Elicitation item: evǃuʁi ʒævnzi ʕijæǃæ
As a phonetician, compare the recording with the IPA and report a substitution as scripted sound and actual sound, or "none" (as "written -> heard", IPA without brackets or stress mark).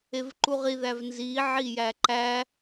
ʒ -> ð